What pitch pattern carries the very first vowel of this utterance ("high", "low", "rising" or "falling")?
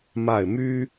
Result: falling